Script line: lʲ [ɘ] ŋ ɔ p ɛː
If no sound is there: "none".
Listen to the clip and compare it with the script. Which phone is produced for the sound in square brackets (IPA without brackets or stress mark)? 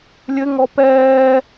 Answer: ɘ